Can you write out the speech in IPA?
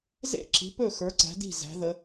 z ḛ˥˨ ǁ i̤˨˦ p ɵ˥˨ x ə˞˨˦ ǀ æ̤˨˦ d i̤˥˨ z æ̤˨˦ ð ə˨˦

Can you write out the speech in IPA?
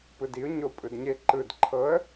p ɯ d i ʊ̯ ɲ o pʼ ɯ d ɲ e ǃ ɯ d ǃʰ ɤ ə̯

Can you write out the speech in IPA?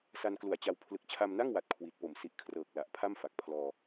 s a˧ n k l u˨˩ a̯ t͡ɕ a˧ w pʰ l ɯ˨˩ k̚ t͡ɕʰ a˧ m n a˥˩ ŋ w a˨˩ t̚ kʰ w i˨˩ t̚ p o˨˩ m s i˨˩ ʔ kʰ r ɤː˨˩ k̚ l a˨˩ ʔ pʰ a˥˩ m f a˨˩ k̚ pʰ l ɔː˧

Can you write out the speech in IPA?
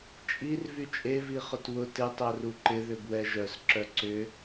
t͡ʃʼ i r v y t͡ʃʼ e v i χ ʊ t w ʊ t ɪ tˤ œ r u ǃ ɪ ð ʏ b w ɛ ʒ œ s ǁ œ ǀ ʏ

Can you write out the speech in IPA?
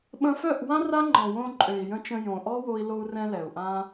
ɓ ə̃˧ f œ˦˨ ʔ w ã˦ r a˦ ŋ͡ǃ ɔ̃˨ w õ˧ ǃʼ ø˨ i̯ j ə̃˧ t͡ʃ ə̃˧ j õ˨ ʔ ɔ˦ w o˧ i̯ l o˧ u̯ r ɛ̃˧ l ɛ˨ u̯ ʔ ã˦

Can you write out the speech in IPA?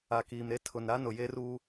a˨ k iː˨ m ɾ e˦ tʰ ʊ˨ n ɾ a˦ n ʊ˨ j e˦ r uː˦

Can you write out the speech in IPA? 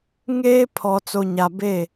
ŋ eː˦ pʰ ɔ˨ t͡s o˨ ɲ a˨ b e˦˨

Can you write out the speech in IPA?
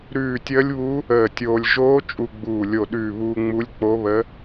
ɾ ʉː˧˩ tʲ əː˧˥ lʲ β u˧˥ | əː˧˩ tʲ oː˧ lʲ ʒ oː˧˥ t͡ʃʼ u˧ ɡ͡b uː˧˩ lʲ o˧˩ ɗ ʉː˧˩ β uː˧ ŋ͡m u˧˥ lʲ k͡p o˧˥ β ə˧˥

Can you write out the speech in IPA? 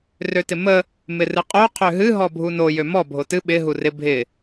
r ø t ɪ m ə | m ɪ r ɨ qʼ o qʰ ø ɦ ɨ ɦ ɔ bʱ u n o j ø m ɔ bʱ o t ɨ ɓ ɪ ɦ u r ɪ bʱ ɪ

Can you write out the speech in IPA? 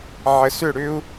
ʕ ə˧ s ʏ˥˧ ɽ ʏ˥ u̯

